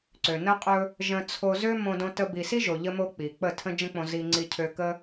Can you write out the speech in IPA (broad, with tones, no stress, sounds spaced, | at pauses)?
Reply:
ǀ ø˨ n ə˧ qʼ ɵ˧ | ʒ ə̃˧ t͡sʰ o˧ z ø˦ m õ˦ d õ˦ t ə˦ b i˧ s i˦ ʒ o˨ ʎ ə˧ m o˧ k͡p i˨ k͡p ə˦˨ tʰ ə̃˦ d͡ʒ ə̃˦ k͡p õ˧ z i˧ ŋ͡ǀ i˧ cʰ ø˧ k ə˦